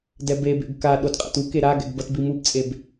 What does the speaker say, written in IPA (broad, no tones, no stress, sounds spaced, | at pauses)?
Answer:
d ɛ b e b ḛ ɡ k a ɗ o d qʼ ɛ̰ t u k e ɾ a ɡ ɛ̰ ɡ b ʌ t b i m u b t͡sʼ e b